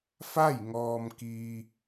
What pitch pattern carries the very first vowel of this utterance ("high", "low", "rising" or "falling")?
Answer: falling